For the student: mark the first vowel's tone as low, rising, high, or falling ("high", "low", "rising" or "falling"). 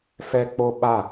high